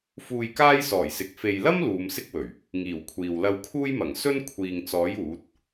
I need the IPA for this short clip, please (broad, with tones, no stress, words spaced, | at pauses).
fuː˧jkaː˥j sɔː˨˩jsɪ˨k̚ fe˨jlɐ˥m luː˨˧msɪ˥k̚wɵ˨˩ɥ | ŋiː˨˩wkʷʰiː˨w lɐ˧wkʰuː˥jmɐ˨˩ŋ sɵ˥n kʷʰiː˨ŋt͡sɔː˨˥j uː˨˥t̚